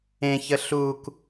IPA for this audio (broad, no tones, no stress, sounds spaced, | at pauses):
ẽ ç ə ɬ u k